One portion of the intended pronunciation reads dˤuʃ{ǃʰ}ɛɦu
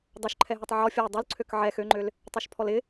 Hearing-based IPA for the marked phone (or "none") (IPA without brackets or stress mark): ǃʰ